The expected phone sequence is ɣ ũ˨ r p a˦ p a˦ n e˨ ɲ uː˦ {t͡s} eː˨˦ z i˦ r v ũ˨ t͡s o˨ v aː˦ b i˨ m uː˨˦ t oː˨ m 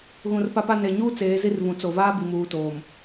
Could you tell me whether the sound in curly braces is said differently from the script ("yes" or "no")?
no